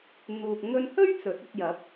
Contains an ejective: no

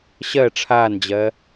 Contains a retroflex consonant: yes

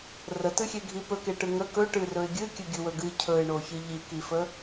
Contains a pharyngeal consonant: no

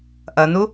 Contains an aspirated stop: no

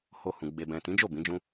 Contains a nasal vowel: yes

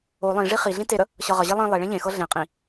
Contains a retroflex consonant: yes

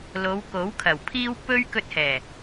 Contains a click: no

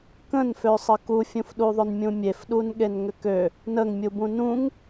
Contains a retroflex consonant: no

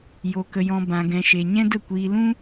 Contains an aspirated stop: no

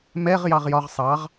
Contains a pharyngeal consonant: no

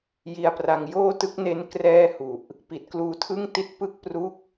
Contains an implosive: no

